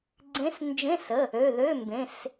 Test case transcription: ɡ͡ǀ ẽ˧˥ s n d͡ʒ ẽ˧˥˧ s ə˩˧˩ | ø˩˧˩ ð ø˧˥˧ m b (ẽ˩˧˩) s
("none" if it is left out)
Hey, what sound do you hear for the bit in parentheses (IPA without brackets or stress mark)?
ẽ˩˧˩